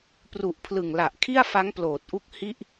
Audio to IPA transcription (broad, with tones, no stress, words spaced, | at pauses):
pru˨˩ʔpʰlɯ˨˩ŋla˨˩ʔ kʰi˥˩a̯fa˦˥ŋploː˨˩t̚ʔu˦˥k̚ hi˥˩ʔ